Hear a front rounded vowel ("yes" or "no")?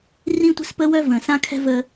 yes